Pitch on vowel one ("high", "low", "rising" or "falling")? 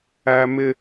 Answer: high